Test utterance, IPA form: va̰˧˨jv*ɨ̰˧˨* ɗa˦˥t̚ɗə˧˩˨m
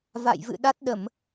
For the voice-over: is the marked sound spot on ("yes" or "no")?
yes